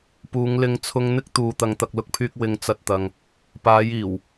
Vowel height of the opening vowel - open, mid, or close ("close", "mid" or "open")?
close